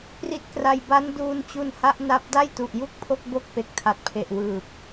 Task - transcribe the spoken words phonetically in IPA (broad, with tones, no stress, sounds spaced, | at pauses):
p r i˦˥ t̚ k r a˧ j b a˦˥ n d uː˧ n t͡ɕ u˧ n h a˦˥ ʔ n a˦˥ p̚ d a˥˩ j t u˨˩ ʔ j u˥˩ k̚ pʰ o˥˩ k̚ b o˥˩ k̚ p e˨˩ k̚ tʰ a˨˩ t̚ pʰ e˨˩ ʔ w ɯː˨˩ p̚